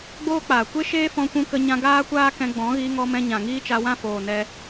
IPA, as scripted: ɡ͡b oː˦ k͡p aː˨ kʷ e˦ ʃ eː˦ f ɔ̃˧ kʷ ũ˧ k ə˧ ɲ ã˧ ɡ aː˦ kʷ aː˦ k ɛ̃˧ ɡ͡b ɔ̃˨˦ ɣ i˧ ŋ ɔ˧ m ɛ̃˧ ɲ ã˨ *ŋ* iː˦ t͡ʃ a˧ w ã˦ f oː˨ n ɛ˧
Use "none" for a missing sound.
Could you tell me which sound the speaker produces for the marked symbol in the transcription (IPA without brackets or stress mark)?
ŋ